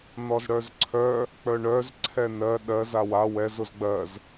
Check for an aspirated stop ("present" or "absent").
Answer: present